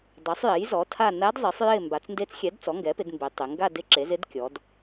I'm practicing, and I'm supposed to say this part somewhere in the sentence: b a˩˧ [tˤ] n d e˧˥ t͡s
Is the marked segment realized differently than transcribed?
yes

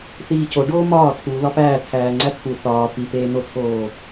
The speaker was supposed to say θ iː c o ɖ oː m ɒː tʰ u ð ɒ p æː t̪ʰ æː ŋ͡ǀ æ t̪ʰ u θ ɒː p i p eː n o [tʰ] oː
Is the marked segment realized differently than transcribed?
no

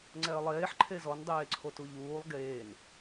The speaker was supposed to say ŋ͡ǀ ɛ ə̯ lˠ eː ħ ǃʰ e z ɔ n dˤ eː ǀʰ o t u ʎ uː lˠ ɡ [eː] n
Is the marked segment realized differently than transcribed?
no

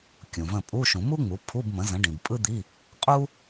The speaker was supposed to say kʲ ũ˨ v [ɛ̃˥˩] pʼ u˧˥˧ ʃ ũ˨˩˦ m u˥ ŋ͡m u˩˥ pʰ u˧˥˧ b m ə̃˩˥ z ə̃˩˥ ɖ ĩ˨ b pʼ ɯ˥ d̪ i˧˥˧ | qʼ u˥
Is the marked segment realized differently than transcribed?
yes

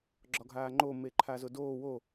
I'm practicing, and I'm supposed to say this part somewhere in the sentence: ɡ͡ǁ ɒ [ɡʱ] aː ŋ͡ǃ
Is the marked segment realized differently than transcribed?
no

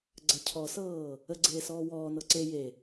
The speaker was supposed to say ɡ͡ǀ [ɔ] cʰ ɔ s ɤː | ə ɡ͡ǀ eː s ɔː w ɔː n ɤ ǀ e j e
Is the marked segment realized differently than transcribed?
yes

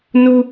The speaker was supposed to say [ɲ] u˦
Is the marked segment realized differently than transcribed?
yes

